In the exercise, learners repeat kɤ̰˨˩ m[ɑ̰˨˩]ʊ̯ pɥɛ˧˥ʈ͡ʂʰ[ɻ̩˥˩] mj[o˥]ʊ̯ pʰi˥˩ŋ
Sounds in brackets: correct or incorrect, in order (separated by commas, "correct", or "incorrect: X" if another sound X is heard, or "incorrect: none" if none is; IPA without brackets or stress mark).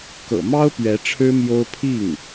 incorrect: ɑ˥, incorrect: ɻ̩˥, correct